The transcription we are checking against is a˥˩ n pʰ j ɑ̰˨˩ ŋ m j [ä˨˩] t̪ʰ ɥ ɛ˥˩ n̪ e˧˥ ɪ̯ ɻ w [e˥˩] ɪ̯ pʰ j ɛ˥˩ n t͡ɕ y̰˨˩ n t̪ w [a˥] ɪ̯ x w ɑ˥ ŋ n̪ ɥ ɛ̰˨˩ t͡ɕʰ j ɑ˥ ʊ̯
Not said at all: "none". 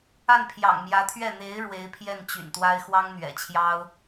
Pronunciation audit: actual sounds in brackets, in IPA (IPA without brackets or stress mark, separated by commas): ä˧˥, e˧˥, a˥